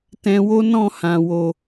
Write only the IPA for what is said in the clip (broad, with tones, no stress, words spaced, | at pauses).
tɛ̃˧wo˦ nɔ̃˦˨hã˨wo˨